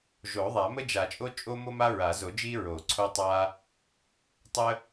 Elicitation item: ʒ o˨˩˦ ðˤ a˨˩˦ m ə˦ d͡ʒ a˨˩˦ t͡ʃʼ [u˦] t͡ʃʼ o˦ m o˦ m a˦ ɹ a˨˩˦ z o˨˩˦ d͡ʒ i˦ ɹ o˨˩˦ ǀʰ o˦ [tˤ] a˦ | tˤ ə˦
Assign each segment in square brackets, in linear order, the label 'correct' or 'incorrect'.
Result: incorrect: o˦, correct

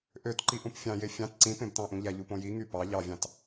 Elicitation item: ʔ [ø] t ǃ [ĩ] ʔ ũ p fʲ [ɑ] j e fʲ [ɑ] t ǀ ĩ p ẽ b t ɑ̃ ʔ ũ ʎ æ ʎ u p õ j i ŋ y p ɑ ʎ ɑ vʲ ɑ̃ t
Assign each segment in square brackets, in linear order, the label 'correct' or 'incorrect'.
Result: correct, incorrect: i, incorrect: ɑ̃, incorrect: ɑ̃

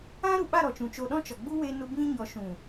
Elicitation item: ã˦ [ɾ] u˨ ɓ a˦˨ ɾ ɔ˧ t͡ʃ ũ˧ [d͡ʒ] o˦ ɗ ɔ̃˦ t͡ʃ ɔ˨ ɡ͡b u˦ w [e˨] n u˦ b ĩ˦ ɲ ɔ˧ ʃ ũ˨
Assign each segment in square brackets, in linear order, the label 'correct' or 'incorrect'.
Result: correct, incorrect: t͡ʃ, incorrect: e˦

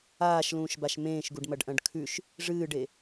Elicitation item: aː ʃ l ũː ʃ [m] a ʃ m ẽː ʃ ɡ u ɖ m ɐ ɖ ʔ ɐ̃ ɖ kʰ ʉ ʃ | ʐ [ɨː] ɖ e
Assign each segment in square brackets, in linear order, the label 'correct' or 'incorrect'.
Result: incorrect: b, correct

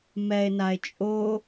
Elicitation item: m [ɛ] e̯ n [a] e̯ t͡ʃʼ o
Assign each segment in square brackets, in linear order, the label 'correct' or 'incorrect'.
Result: correct, correct

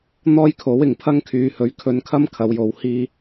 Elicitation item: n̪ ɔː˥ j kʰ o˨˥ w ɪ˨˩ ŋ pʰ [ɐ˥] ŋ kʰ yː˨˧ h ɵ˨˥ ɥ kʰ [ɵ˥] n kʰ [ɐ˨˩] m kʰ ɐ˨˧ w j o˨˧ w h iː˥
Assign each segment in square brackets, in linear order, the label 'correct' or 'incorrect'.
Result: correct, incorrect: ɵ˧, incorrect: ɐ˥

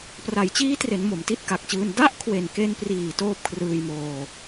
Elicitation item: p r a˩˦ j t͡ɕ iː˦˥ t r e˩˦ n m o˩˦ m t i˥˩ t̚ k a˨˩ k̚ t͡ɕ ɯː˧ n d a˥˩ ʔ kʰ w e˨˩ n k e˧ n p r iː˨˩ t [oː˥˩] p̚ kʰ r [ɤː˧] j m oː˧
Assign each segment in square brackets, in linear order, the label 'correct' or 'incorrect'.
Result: correct, incorrect: ɯː˧

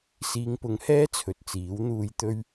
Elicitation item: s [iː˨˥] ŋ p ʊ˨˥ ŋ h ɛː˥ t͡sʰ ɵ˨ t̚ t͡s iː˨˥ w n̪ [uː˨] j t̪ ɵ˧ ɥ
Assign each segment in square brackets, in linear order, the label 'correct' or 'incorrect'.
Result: incorrect: iː˨˧, correct

